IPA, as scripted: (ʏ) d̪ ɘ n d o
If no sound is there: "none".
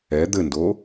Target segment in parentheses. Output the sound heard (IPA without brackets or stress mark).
ɛ